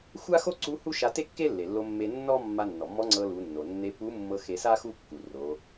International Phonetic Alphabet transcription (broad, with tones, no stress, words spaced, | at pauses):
xʷa˥xo˥ǀu˧˥ hu˥ʃa˧te˥kːe˥ lːe˩lːo˧mːe˧ nːɔ˥ mːa˧ nːɔ˩mːɔ˧˥ŋ͡ǀɤ˧ lu˩˧nːo˩nːe˧˥ pu˧˥mːɤ˧ xe˧sa˥ xu˥ kːu˩ro˩˧